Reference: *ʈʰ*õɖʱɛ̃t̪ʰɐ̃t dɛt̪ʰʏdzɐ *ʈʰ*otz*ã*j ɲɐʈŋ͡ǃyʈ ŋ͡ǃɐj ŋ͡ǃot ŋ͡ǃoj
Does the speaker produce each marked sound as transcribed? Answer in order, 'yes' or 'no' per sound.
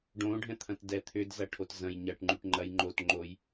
no, yes, no

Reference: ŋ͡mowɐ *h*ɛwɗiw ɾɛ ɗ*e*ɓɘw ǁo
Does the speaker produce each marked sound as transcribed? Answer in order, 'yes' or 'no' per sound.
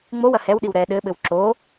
yes, no

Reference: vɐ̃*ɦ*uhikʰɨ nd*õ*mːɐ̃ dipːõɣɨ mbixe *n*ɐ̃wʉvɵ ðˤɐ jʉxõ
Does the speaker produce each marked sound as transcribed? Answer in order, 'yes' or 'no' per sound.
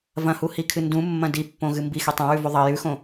no, no, no

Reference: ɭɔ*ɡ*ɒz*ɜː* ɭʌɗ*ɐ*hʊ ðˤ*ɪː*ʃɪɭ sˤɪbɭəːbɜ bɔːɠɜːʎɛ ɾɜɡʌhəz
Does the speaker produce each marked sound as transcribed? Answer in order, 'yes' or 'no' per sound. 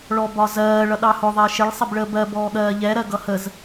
no, yes, no, yes

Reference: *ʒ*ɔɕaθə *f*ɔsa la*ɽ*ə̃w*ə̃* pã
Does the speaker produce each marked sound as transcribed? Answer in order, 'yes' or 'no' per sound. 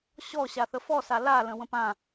no, yes, no, yes

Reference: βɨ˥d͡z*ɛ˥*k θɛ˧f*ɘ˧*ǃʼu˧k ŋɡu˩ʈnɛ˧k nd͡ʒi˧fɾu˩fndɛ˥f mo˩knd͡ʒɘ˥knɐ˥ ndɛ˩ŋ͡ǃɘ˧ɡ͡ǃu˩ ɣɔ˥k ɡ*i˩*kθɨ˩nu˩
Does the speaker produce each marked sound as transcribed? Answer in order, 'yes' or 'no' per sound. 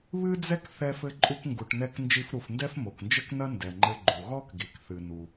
yes, yes, yes

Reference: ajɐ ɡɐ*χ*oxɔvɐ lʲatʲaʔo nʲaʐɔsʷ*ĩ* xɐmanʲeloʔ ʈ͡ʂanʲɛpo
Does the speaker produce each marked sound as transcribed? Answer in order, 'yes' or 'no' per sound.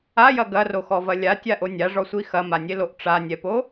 no, no

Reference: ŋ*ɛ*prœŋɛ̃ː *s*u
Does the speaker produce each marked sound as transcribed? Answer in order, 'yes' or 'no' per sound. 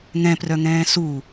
no, yes

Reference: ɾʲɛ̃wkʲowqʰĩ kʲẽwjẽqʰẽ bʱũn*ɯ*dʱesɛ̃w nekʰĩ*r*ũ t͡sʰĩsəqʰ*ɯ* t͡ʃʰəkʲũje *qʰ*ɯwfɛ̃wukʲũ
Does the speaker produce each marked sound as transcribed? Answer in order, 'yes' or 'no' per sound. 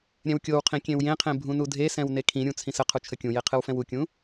no, no, no, yes

